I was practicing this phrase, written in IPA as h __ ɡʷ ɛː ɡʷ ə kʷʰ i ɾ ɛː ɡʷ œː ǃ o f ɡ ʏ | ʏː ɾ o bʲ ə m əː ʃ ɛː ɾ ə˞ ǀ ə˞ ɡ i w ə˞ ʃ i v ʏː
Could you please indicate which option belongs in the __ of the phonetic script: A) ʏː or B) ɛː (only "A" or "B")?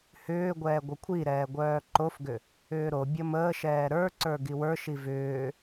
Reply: A